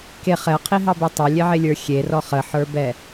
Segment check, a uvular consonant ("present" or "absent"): present